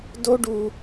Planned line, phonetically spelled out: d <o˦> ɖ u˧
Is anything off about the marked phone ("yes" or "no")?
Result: no